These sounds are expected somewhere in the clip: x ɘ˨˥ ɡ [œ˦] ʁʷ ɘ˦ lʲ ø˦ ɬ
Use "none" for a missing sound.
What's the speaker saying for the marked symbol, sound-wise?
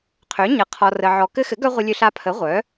œ˦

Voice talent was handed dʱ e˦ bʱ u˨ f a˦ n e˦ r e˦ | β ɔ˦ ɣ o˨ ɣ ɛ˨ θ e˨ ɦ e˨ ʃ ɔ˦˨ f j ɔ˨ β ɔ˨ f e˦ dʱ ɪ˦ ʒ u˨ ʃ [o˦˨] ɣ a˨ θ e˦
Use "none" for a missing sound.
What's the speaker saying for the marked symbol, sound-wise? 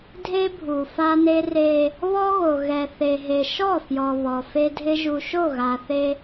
o˦˨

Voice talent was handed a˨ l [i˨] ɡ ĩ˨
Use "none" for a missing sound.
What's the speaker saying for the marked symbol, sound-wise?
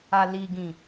i˨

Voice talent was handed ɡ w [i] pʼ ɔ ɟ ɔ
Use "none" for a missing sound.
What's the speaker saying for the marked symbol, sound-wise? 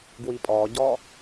i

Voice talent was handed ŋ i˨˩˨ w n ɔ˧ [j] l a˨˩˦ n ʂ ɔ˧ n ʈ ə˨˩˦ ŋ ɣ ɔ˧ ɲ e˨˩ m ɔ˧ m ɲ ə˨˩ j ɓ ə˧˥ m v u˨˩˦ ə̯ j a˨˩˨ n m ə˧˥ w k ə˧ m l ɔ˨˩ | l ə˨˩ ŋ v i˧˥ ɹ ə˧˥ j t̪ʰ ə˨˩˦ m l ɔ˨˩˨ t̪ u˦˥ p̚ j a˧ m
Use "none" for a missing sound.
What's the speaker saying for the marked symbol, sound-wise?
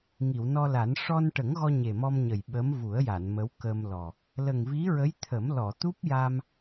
none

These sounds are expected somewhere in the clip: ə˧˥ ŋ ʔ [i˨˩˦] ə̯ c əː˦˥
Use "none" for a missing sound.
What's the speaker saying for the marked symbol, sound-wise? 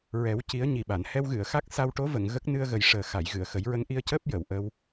i˧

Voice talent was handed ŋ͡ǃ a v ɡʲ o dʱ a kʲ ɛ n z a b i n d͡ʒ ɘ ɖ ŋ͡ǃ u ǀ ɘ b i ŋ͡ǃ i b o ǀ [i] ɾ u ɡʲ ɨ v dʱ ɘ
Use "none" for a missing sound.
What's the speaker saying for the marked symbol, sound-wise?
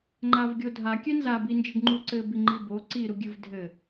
i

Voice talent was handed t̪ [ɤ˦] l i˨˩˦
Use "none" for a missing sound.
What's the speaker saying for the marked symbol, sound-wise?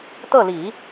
ɤ˥˩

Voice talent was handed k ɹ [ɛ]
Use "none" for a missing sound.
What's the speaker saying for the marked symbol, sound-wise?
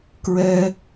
ɛ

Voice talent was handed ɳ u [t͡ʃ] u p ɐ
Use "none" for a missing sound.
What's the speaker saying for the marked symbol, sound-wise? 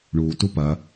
t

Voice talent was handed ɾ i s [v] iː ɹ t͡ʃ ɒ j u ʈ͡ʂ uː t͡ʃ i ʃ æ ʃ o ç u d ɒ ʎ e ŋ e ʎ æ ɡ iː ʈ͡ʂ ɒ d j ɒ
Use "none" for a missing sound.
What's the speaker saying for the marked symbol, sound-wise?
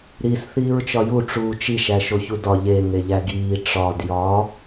θ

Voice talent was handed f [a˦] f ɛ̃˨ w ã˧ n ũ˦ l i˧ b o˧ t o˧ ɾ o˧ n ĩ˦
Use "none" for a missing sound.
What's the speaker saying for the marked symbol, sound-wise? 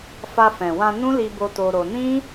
a˧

